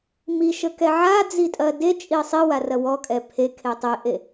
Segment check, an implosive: absent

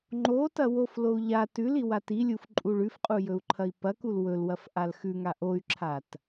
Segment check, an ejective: present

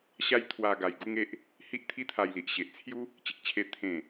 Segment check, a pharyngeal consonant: absent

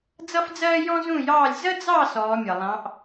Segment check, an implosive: absent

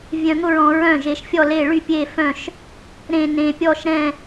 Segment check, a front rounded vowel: present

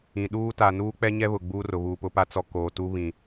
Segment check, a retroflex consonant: absent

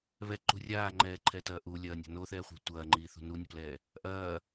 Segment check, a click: present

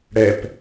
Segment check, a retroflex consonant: present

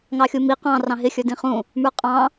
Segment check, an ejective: present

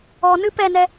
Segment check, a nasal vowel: absent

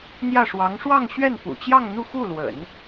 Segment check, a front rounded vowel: absent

